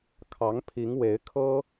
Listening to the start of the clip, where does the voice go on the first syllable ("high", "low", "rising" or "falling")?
rising